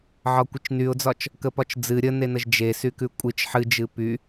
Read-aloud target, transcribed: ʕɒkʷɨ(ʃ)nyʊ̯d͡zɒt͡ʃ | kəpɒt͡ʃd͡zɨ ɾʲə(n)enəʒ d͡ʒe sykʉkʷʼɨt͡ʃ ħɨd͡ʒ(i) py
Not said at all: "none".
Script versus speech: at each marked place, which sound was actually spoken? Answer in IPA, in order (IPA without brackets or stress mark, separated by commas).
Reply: t͡ʃ, n, ɨ